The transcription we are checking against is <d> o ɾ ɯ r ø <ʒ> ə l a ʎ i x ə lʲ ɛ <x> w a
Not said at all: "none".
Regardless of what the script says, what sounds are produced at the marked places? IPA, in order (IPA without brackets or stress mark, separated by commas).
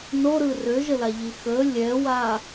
n, ʒ, none